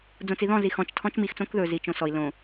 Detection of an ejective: absent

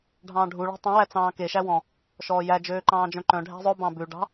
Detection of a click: present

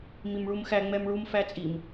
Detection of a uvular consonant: absent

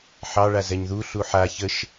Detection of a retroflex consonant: present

